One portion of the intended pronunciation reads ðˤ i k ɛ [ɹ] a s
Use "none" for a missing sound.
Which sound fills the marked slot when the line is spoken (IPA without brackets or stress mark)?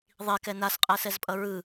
n